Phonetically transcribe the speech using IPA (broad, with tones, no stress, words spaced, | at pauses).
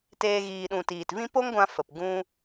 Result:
teː˧ɣiː˨ɗũ˨ tiː˨tvĩ˦ po˦ŋɡʷã˧ fə˨pɡũ˦